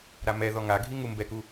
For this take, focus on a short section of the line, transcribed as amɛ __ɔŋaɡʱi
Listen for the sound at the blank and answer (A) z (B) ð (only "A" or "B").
B